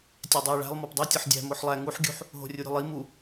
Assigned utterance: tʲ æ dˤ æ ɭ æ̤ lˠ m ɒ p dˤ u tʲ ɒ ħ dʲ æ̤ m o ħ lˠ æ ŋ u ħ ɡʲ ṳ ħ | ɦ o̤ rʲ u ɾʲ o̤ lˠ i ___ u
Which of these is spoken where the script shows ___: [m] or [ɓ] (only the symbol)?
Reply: m